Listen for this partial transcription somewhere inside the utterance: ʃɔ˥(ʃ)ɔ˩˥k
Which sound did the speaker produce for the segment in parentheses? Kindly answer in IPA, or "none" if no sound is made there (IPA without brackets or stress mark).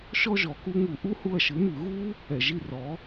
ʒ